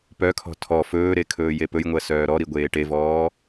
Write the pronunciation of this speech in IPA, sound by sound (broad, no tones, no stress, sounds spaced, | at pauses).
p œ kʰ ɔ̤ tʰ ɔ f ɵː ɾ e kʰ ɵː j e p ɵ j ŋʷ ɜ s œː ɾ ɔ ɾ i ɡʷ eː ʈ e v ɔː